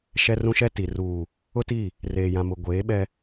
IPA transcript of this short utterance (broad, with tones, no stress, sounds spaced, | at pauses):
ʃ ɛ˦ r ũ˦ ʃ ɛ˦ t i˨ r uː˨ | ʊ˦ t i˦˨ | r eː˨ j ã˨ m ʊ˨ ɡʷ eː˨˦ ɓ ɛ˦